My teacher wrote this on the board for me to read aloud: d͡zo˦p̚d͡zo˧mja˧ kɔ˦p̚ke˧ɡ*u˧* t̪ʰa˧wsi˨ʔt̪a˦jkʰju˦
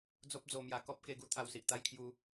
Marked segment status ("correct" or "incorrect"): incorrect